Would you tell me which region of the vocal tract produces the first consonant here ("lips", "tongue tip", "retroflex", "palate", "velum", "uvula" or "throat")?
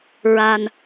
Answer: tongue tip